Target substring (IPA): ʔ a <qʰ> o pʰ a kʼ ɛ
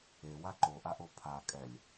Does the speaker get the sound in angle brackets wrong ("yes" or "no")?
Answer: yes